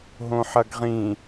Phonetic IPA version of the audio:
ɦ õ ħ ɐ ɡ ʁ ĩ

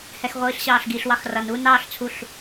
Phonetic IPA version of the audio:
h ɛ x ʁʷ iː ɬ ɕ ɑː ɬ ɡ i ɬ w ɑ x r ʌ n u n ɑː ɬ t͡sʰ u ɬ

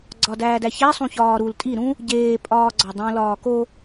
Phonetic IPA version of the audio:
ɡ͡ǀ ɒ d æː d æ ç æ sˤ ũ ç ɒː ɾ u l tʼ i ɾ ũ | ɟ eː pʼ ɒː ɡ͡ǀ ɒ dˤ õ l ɒː k o

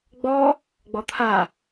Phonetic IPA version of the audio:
ɡ͡b ɔ | ɡ͡b ɔ t̪ʰ a

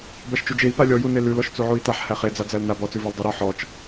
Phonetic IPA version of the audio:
b æ ʃ t͡ʃ u d͡ʒ e i̯ p a lʲ ɔ j u n e l ʉ l ɔ ʃ t͡s u ʕ u i̯ t a ħ h æ χ e d͡z a d͡z æ l n a b ɔ t͡s ʉ v ɔ l dˤ ʉ ɾ ɔ ħ ɔ t͡ʃ

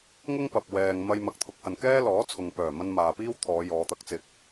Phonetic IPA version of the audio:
ŋ ʊ˥ ŋ p ɐ˨ p̚ w ɛː˨ ŋ m ɐ˧ j m ɐ˨ k̚ t̪ʰ ʊ˨˥ k̚ h ɐ˨ n k ɛː˥ l ɔː˨˥ t͡sʰ ʊ˨ ŋ p œː˨˩ m ɐ˧ n m aː˨ p iː˥ w t̪ʰ ɔː˨˧ j ɔː˨˧ t̪ ɐ˧ k̚ t͡s ɪ˧ k̚

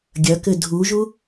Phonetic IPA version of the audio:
ɡʲ ɐ k ɘ dʱ u ʒ u

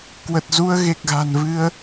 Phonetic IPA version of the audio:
k w ə˨˩ t̚ z u˧ ə̯ ɣ e˨˩ k̚ ɣ a̤˨˩ n v ɨ˧ ə̯

